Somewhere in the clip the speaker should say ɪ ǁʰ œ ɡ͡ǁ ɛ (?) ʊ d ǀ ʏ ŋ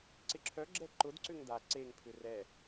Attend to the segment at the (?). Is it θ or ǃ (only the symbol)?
ǃ